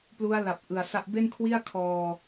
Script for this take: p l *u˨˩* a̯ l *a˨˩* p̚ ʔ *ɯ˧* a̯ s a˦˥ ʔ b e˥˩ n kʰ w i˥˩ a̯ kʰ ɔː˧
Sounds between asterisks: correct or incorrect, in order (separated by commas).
incorrect, correct, incorrect